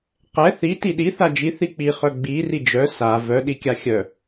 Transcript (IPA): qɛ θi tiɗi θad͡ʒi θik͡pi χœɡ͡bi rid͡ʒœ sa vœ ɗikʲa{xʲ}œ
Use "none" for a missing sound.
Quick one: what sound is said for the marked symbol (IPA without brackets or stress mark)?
xʲ